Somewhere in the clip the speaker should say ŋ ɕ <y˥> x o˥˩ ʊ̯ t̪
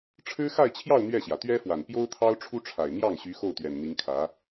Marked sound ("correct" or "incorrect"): incorrect